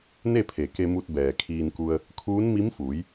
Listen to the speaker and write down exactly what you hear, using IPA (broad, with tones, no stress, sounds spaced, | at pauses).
n e˥˨ pʰ e˩ k e˧ m u˧ t̚ b ɛː˩ kʰ iː˧ n k u˧ ə̯ | kʰ uː˧˥ n m i˧˥ m f uː˩˧ j